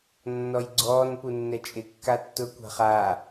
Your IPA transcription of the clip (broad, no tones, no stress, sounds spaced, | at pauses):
nː ɔ j ɡ͡ǀ ɔː n p u nː ɛ t͡ʃʼ ɪ kː a tː ʊ kʷ a̤ χ aː